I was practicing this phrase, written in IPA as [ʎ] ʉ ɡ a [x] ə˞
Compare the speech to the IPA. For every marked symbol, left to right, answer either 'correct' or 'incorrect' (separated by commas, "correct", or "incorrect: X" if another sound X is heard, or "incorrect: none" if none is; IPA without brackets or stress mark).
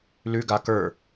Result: incorrect: l, incorrect: k